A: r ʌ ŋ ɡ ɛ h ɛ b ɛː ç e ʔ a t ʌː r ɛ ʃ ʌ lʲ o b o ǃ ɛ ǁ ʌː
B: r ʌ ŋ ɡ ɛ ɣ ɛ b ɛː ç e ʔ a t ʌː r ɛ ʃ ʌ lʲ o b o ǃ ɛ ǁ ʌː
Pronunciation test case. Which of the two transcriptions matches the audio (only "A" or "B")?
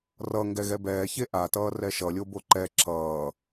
B